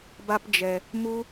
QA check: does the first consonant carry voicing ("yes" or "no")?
yes